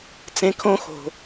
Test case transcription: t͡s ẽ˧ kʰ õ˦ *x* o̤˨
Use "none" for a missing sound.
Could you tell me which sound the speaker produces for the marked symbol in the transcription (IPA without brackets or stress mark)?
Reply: x